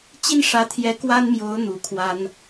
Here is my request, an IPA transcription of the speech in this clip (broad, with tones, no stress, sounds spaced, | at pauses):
t͡ɕ i˦ n ʂ ä˨˦ t̪ʰ j ɛ˨˦ k w a˦ n m j o˨˦ ʊ̯ n̪ u˨˦ kʰ w a˦ n